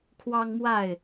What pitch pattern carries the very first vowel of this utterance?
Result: high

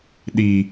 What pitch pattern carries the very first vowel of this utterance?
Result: low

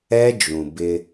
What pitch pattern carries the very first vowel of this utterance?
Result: high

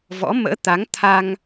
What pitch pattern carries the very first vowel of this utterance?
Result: rising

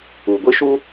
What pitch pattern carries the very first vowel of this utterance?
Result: low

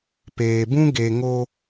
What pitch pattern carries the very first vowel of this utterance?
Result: low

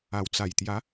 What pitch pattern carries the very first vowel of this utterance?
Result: low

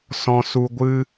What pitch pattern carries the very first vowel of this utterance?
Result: low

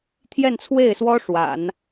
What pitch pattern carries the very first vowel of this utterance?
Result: falling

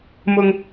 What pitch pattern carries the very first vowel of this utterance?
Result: high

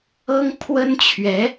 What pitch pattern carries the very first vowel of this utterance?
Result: high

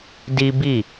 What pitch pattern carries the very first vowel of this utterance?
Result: high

